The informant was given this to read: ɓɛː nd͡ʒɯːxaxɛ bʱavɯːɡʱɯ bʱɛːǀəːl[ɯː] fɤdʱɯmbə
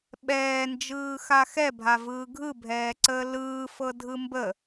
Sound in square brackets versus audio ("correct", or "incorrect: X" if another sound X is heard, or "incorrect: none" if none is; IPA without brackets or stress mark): correct